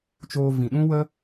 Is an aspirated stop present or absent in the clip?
absent